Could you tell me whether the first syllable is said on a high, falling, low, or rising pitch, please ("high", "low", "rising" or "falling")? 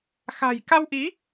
low